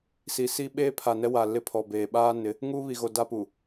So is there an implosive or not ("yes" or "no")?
yes